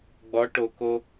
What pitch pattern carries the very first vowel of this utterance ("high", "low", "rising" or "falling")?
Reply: rising